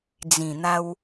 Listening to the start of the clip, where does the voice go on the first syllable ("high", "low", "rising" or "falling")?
low